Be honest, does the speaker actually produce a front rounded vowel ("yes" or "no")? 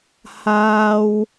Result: no